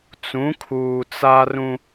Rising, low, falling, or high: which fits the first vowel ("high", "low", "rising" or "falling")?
rising